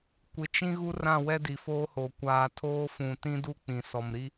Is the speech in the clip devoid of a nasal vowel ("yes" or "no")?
no